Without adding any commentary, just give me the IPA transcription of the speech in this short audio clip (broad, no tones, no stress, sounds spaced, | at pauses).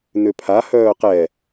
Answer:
n ʏ pʰ a h œː q ɛ